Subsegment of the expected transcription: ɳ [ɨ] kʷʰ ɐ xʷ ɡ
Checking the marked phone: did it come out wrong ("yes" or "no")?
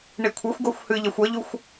yes